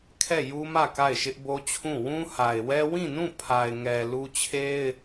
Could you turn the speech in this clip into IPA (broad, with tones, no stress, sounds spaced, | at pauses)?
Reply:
kʰ ɛ˦˨ j u˦ m ä˦˨ k a˦˨ ɪ̯ ʃ ɪ˦ ʔ b o˦ t͡ɕʰ ũ˦˨ w ũ˦ h a˨ ɪ̯ w ɛ˦ w ĩ˦˨ n ũ˦˨ pʰ a˨ ɪ̯ ŋ ɛ˨ l u˦ t͡ɕʰ e˦ ɪ̯